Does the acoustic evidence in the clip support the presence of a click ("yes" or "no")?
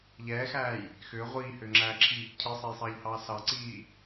yes